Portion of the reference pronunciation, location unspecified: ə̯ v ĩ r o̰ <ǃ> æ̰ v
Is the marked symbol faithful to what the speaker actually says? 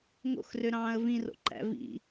yes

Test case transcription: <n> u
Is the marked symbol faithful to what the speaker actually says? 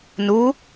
yes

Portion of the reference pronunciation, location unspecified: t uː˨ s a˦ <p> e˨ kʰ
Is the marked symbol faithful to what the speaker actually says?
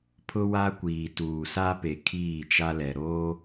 yes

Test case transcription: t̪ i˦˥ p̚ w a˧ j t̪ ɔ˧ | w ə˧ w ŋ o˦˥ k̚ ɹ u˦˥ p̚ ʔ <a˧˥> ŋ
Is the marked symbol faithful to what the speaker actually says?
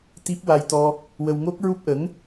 no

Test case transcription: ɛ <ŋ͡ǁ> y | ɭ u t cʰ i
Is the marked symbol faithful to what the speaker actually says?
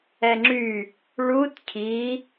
yes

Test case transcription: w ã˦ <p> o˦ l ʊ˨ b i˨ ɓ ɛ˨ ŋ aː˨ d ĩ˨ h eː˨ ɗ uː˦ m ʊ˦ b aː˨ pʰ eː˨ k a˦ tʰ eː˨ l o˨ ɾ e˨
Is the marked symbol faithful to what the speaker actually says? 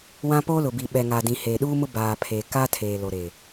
yes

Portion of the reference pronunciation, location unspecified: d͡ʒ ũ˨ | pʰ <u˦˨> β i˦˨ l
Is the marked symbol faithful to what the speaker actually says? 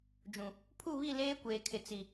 yes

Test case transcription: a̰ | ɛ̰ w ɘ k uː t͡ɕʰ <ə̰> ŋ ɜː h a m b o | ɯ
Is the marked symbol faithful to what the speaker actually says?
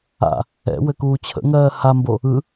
yes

